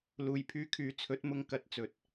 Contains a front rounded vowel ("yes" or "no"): yes